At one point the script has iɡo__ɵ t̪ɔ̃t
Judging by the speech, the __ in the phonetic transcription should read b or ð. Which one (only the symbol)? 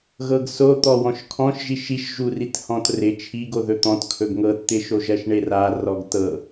ð